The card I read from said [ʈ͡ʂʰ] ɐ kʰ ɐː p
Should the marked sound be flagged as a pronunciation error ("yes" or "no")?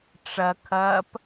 yes